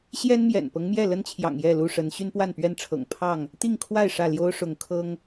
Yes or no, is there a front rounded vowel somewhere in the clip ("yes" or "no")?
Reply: yes